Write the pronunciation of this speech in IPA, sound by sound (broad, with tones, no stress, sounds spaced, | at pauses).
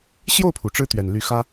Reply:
ɕ j o˥˨ ʊ̯ pʰ u˩ ʈ͡ʂ ɻ̩˦ t̪ ɥ ɛ˨˩ n l y˨˦ x ä˦